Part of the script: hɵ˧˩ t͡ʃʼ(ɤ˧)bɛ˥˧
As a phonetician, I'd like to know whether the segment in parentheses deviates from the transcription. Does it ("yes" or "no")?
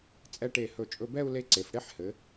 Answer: yes